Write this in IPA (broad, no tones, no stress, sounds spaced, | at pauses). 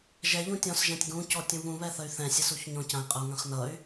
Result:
ʒ ɛ ʎ ũ tʲ ɔ̃ s ʒ ɛ̃ tʲ ɡ ũ c ɔ tʲ ũ β ũ β ɛ θ ə y̯ θ ɛ̃ sʲ ə s u ç ɲ ɔ̃ c ã i̯ qʼ ə u̯ ŋ ã χ n ʌ y̯